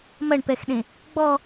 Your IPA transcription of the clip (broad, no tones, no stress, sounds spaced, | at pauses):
m ɐ ɳ p ɛ x ɗ ẽ | ɡ͡b ɔ